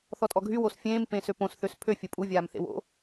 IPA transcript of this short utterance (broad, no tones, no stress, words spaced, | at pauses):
θɔtʼɔɡʱy wosfʲẽːm pẽːsøpõs θøspʰø fʲəpʼu vʲaːmθḛwo̰